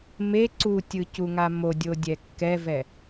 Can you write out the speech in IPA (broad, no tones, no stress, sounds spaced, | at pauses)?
m e ǀ u tʲ ɯ c u ŋ a m o dʲ o dʲ ɛ kː ɛ v ɛ